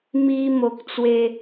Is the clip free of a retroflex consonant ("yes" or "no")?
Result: yes